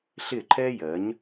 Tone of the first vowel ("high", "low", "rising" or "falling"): falling